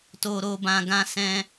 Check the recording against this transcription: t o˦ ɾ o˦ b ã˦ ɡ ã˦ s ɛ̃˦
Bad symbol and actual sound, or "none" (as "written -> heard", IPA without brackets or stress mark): none